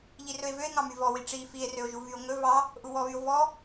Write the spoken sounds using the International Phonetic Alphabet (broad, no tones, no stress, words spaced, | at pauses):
ʎirɵe̯vøe̯ ŋɑmyvɔwi ʈ͡ʂi fie̯røo̯ʒu vyo̯ŋɵ vɑ | ʔuwɔβyo̯ vɔ